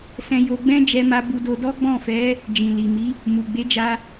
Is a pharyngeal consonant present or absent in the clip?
absent